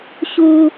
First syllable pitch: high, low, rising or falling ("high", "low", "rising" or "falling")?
high